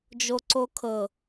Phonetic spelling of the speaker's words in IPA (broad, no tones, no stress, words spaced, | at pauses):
d͡ʒoǀokʰɤ